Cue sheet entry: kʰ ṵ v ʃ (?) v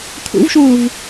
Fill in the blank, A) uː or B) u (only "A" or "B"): A